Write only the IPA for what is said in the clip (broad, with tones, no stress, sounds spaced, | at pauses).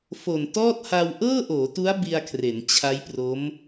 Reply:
f o˨˩ n t ɔː˥˩ t̚ h a˧ w ʔ ɤː˥˩ ʔ oː˩˦ t u˦˥ a̯ b i˧ a̯ kʰ r e˩˦ n t͡ɕʰ a˦˥ j p r o˦˥ m